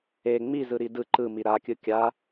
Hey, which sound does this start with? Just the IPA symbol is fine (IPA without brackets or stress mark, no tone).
e